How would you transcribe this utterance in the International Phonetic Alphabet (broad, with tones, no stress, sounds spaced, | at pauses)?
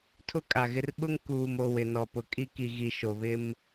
tʰ ʊ˦ kʼ a˨ ɣ ɪ˦ r ɓ ʊ˦ ŋ k uː˨ m o˨ w ɪ˨ n ɔ˨ p ʊ˨ kʼ i˦ k i˨ ɣ i˨ ʃ o˨ β ɪ˦ m